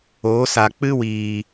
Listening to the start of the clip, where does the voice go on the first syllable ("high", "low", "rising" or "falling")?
rising